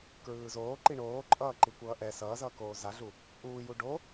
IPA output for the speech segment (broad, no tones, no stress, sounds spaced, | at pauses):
k ɹ ɯː z oː ǃ i ɳ oː ǃʼ ʌː ǃ i kʷ ʌː ʔ ɛ s ʌː z ʌː k oː z a ɮ u | ʔ uː j u ɖ o